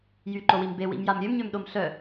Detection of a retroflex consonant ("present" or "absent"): absent